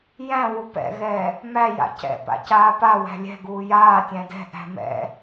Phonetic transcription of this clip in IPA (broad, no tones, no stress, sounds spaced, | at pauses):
j æ̃ w u p ɛ̰ ɣ ɛː | m æ j a̰ c ɛ̰ p a̰ c aː p a w æ̤ lʲ ɛ̤ ɡ uː j aː tʲ æ̃ d ɛ̤ ʔ æ̤ m ɛ̰